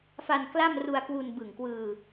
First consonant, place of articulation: labial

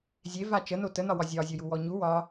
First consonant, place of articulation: alveolar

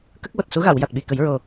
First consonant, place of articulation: velar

